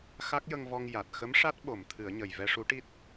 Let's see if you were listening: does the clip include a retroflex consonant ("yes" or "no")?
yes